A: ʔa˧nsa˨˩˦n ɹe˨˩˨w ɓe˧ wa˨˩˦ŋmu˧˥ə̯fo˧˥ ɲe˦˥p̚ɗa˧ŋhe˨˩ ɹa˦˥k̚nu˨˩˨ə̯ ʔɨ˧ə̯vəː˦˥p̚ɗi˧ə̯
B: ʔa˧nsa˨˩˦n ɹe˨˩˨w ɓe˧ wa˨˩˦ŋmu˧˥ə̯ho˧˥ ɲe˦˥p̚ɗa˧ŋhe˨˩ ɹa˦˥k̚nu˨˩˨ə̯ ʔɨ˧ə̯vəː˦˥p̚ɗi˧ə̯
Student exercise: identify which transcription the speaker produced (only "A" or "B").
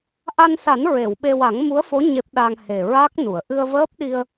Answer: A